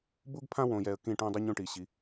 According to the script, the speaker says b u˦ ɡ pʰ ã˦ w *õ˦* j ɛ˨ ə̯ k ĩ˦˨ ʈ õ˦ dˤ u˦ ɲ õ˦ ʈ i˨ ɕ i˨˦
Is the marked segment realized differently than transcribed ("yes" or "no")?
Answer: yes